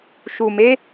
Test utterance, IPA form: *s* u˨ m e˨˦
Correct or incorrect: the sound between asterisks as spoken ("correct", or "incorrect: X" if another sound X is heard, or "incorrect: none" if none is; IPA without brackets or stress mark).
incorrect: ʃ